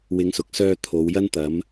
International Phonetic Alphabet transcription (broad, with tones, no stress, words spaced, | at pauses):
wɪ˨˧ŋsʊ˨k̚sœː˧ t̪ʰo˨˧wjɐ˥n t̪ɐ˨˧m